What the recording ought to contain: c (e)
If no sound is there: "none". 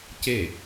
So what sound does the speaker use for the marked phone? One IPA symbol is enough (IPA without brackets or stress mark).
e